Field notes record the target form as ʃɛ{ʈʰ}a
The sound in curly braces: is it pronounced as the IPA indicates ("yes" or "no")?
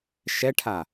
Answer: yes